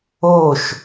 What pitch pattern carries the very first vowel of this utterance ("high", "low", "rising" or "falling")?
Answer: falling